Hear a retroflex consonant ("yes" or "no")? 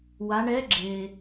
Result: yes